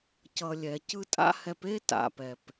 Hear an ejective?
yes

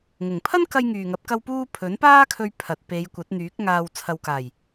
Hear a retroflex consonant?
no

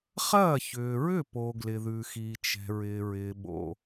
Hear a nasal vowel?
no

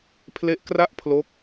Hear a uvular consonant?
no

